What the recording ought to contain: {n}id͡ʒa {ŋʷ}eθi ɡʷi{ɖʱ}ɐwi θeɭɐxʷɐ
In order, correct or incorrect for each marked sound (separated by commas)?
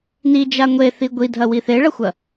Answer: correct, correct, incorrect